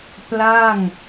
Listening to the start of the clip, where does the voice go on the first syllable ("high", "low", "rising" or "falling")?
falling